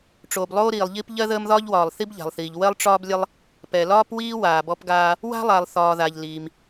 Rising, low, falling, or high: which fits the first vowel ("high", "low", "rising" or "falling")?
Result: low